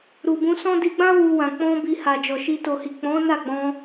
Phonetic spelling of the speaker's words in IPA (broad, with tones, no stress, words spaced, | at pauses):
ɾu˨bũ˧sɔ̃˦ di˧ɡ͡bã˦ wu˧wã˨ k͡pɔ̃˧ bi˧ ha˨d͡ʒɔ˨ ʃi˧ to˨hi˨ k͡pɔ̃˨˦ na˦˨ɡ͡bɔ̃˧